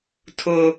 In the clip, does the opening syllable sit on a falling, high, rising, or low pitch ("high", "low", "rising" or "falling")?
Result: high